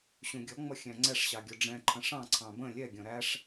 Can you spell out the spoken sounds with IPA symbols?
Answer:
ɕ ũ ɡʲ ɔ ŋ͡m ʌ xʲ æ̃ ŋ͡ǀ ɛ ʂ ɕ ɑ ɡʲ ɔ ɖ͡ʐ ɛ̃ ǃʰ ə̃ ʂ ɑ̃ ǀʰ ɑ̃ b ə̃ lʲ ɛ ɡʲ ɔ̃ ɾ æ ʂ

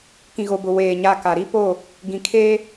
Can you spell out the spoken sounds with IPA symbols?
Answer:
k ĩ˨ ɣ o˨ b ʊ˨ w eː˨ ɲ a˦ k a˨ ɾ i˦ p o˦˨ | ɡ ĩ˨ kʰ eː˦

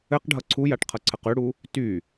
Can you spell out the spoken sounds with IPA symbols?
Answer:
ɘ q ɖʱ ʌ ǀʰ u j a ʈ qʰ ʌ ǀʰ ə q ʉ ɽ u | t y

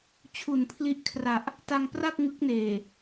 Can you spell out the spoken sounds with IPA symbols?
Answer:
t͡ɕʰ u˨˩ n pʰ l i˦˥ ʔ kʰ r a˨˩ ʔ | t a˧ ŋ p r a˥˩ k̚ ŋ ɯ˦˥ k̚ n eː˨˩

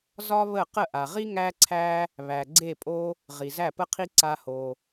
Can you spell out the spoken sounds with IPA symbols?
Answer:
z ɒ˦ β ə˦˨ q ə˦˨ ʔ a˨ ʁ i˦ ŋ æ˦ ǀʰ æ˦ | β æ˨ ɡ͡ǀ e˦˨ pʼ o˦ | ʁ i˨ z æ˦˨ p ə˦ qʰ i˦ ǀ a˦ h o˧

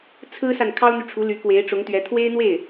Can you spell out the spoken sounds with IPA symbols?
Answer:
t͡sʰ ɹ̩˥ s a˨ n kʰ ɑ˥ ʊ̯ n̪ y˨ ʈ͡ʂʰ u˧˥ l y˧˥ k w e˧˥ ɪ̯ ʈ͡ʂ ʊ˧˥ ŋ t̪ ɥ ɛ˧˥ t̪ʰ w e˥ ɪ̯ n̪ w e˥˩ ɪ̯

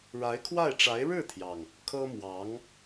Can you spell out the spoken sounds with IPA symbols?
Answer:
ɻ a˧˥ ɪ̯ kʰ w a˥˩ ɪ̯ ʈ͡ʂ a˧˥ ɪ̯ ɻ ɻ̩˥˩ t̪ʰ j ɑ˩ ŋ | kʰ ɤ˥ m w ɑ˧˥ ŋ

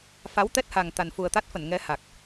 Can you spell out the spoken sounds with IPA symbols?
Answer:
f a˨˦ w t̪ ɛ˦˥ t̚ h a˨˩ ŋ t̪ a˨˩ n f u˨˩ ə̯ t̪ a˦˥ t̚ f ə˧˩ n ŋ ɛ˨˦ h a˨˩ k̚

